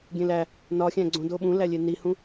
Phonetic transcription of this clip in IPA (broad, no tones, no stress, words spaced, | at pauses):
ɡʲẽlæ | nɒxʲæ̃ɡ͡ǀõdo ɓũlælʲe nihũ